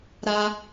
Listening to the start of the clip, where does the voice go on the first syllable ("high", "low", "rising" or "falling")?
high